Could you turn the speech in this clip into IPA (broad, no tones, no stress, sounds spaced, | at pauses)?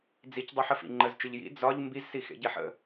d͡z i c dˤ u ħ ə f ḭ ŋ͡ǃ ə z t͡ʃ ɯ ʎ j ḭ d͡z ɒ ʎ m b i z s i x ḛ ɟ e ħ ə̰